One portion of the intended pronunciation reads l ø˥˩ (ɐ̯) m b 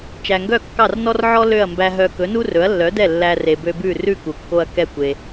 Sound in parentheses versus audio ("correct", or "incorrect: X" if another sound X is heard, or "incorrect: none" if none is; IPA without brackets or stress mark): correct